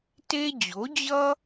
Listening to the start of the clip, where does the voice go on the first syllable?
high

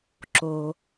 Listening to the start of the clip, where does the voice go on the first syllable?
low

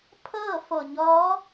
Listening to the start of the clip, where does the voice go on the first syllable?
falling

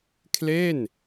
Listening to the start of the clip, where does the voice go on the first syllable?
falling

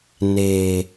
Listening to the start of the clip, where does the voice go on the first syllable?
low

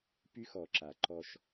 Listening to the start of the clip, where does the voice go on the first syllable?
high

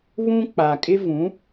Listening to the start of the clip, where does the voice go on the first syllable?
high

